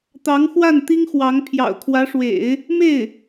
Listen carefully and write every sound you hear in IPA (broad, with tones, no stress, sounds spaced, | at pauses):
t̪ ɑ˧˥ ŋ x w a˥˩ n t̪ i˥ ŋ x w ɑ˧˥ ŋ pʰ j ɑ̰˨˩ ʊ̯ kʰ w ä˧˥ ʂ w ḛ˨˩˦ ɪ̯ | m e˥˩ ɪ̯